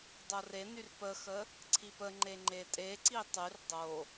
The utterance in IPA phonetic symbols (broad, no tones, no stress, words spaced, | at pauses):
dˤorenyr pəxə | ǀʰipəŋ͡ǃe ŋ͡ǃetʼeǀi tˤyr dˤo